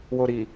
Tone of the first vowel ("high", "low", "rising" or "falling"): low